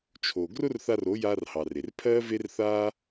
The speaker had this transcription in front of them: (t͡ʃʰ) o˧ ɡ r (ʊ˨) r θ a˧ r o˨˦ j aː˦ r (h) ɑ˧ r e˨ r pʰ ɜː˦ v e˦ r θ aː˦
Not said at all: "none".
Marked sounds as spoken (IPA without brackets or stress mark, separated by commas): t͡ʃʰ, ʊ˦, h